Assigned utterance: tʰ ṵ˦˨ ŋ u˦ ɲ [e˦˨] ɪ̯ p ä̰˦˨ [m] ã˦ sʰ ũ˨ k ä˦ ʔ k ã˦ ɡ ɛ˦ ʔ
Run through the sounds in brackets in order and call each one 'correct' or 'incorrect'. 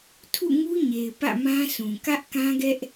incorrect: e˨, correct

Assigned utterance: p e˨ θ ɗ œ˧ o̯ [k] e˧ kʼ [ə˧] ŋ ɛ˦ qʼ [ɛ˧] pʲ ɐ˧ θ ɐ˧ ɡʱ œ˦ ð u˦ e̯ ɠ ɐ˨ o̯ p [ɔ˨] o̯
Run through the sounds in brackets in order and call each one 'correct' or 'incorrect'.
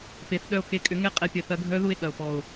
correct, incorrect: ʏ˧, correct, correct

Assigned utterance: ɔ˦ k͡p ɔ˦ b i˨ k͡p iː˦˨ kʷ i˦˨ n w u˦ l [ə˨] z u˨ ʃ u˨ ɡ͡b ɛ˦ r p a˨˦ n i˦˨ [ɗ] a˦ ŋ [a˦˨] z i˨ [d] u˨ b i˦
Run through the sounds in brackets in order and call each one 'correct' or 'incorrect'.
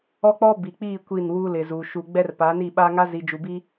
incorrect: ɪ˨, incorrect: ɓ, incorrect: a˦, incorrect: d͡ʒ

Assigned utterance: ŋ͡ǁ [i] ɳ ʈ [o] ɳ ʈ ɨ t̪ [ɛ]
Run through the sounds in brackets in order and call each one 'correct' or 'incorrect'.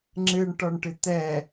incorrect: ɨ, incorrect: ɔ, correct

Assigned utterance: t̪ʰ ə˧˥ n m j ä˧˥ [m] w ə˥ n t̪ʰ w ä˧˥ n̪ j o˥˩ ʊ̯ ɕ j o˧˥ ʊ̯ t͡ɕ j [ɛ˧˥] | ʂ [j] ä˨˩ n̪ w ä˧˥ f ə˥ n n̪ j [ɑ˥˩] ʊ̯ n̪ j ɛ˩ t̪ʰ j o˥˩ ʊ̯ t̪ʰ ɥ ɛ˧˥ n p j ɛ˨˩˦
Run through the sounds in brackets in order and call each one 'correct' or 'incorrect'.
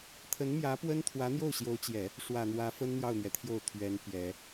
incorrect: p, incorrect: ɛ˨˩˦, incorrect: w, correct

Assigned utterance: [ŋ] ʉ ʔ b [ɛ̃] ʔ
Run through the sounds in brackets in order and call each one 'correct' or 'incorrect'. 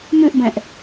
incorrect: m, correct

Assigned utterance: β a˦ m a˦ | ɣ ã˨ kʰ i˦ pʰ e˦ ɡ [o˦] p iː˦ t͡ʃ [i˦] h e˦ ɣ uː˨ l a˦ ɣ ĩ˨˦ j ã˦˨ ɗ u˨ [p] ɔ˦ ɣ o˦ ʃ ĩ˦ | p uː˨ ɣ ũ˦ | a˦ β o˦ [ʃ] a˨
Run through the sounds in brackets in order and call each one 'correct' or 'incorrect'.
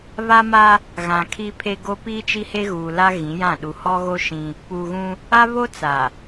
correct, correct, incorrect: h, incorrect: t͡s

